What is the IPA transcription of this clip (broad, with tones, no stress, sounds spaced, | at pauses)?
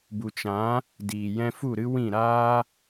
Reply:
b u˨ t͡ʃ ã˨˦ | d iː˨ j ɛ̃˧ f u˦˨ ɾ ɨ˦ w ĩ˦˨ ɾ aː˦